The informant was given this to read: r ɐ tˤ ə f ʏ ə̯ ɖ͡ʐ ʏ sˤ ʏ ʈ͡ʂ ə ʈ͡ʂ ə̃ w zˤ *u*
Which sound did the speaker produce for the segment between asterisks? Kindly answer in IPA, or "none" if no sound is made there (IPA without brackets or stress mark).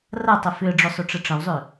ø